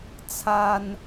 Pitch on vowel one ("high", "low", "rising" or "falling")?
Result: high